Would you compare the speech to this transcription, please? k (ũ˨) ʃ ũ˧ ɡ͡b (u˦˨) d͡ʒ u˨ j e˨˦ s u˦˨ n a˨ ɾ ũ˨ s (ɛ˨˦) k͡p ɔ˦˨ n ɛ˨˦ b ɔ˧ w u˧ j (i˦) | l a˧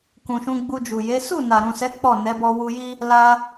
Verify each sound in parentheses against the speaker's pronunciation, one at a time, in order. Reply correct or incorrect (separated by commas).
correct, incorrect, correct, correct